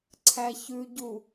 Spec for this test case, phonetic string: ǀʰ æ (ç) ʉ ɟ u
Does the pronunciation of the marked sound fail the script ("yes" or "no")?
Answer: no